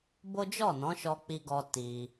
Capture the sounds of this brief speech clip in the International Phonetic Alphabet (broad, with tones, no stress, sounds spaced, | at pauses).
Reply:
b o˦ d͡ʒ ɔ˦˨ n ɔ̃˨˦ ʃ ɔ˧ k͡p i˧ ɡ ɔ˧ t i˧